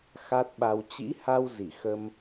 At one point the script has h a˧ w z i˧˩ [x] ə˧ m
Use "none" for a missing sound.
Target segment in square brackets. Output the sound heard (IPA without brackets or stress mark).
x